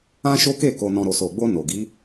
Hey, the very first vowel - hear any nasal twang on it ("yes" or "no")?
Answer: yes